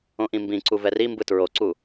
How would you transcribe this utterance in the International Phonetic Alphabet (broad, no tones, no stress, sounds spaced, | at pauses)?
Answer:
õ ʔ ĩ m b ĩ ǀ u v ɛ r i m b ɯ t ɹ o ǀ u